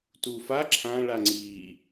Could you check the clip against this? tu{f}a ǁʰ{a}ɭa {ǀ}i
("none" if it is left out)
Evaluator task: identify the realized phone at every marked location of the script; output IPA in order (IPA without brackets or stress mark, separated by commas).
f, ã, ŋ͡ǀ